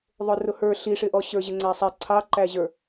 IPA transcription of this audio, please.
ðˤ ʊ r ʊ h ə˞ ɬ i ʂ ɪ ʔ ɔ ɕ ə˞ ʑ ɪ ŋ͡ǀ æ sˤ ɛ ǀʰ ɑ ǃ æ ʑ ə˞

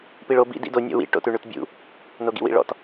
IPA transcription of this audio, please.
p i ɭ o b ḭ d ḭ d o nʲ ɔ̰ w ḭ ʈ o̰ t ʉ ɳ ʉ t bʲ ṵ | n o ɡ ḭ w ḭ ɭ ɔ̰ t

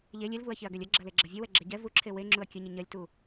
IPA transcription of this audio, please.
ʎ e lʲ e l v u ɐ̯ ç e ɐ̯ ɡ ɛ lʲ ɐ ɡ͡ǁ ɐ l e ɡ͡ǁ ɐ vʲ ɐ w ɛ ɡ͡ǁ ɛ ɟ ɛ v u ǁʰ e w e ŋ͡ǁ u ɐ̯ kʲ ə ɲ ə ɲ ɐ lʲ t u

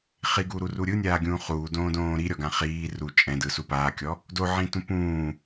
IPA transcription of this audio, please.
χ i ɡ uː ɾ u r u ɾʲ ɯ nʲ aː ɡʲ ũː χ uː d õː d õː ɾ i ɾʲ ɔ ɡ ã χ iː r u t͡ʃʼ ɛ̃ d ɯ s u p aː kʲ ɔ | d o ʕ ĩ t ũ p ũː

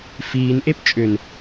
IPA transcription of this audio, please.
f iː n ʔ e p t͡ʃʼ ʏ n

